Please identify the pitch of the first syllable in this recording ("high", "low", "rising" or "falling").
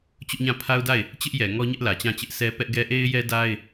high